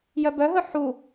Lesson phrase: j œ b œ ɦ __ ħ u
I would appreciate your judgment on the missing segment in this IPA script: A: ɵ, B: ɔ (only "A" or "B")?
A